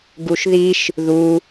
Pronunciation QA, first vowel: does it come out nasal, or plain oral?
oral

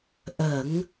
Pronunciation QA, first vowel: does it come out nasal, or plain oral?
oral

